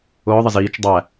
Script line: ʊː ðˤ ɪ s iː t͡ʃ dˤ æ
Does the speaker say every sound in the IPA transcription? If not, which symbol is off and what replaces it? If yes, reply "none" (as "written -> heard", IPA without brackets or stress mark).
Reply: s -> z